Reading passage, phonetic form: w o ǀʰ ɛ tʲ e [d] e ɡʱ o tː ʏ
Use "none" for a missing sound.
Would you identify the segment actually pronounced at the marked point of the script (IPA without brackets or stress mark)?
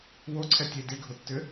d